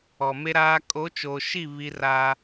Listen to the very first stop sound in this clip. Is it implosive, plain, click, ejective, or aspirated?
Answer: ejective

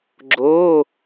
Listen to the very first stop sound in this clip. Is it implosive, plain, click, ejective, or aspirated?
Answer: click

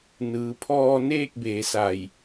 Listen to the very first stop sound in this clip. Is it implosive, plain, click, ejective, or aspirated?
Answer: aspirated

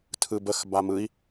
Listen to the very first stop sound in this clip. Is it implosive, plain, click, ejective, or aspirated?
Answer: aspirated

